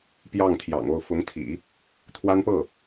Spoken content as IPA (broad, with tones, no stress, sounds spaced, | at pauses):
p j ɑ˥˩ ŋ t̪ʰ j ɑ̰˨˩ ŋ o˥˩ ʊ̯ f ʊ˧˥ ŋ t̪ʰ ḭ˨˩˦ | t̪ʰ w a˥ n p ɤ˥˩